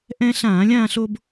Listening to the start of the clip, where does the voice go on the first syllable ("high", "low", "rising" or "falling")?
high